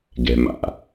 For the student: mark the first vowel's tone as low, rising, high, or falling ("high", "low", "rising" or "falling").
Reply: low